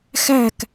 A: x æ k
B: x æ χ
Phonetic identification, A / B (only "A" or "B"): A